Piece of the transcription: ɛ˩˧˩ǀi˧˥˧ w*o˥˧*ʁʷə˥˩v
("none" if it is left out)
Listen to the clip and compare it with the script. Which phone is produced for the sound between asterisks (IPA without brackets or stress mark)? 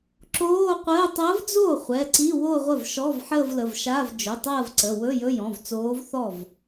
o˥˧